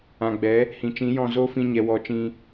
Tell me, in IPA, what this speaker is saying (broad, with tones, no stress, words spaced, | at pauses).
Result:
ã˨ɡ͡bɛ˨˦ | hĩ˨t͡ʃĩ˨˦jɔ̃˦˨ zo˦fĩ˧ ɲɛ˨wɔ˨˦ t͡ʃĩ˧